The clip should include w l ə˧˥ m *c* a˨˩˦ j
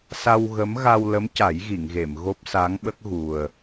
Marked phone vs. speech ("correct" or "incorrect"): correct